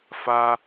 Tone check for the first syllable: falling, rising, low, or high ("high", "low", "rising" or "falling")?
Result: high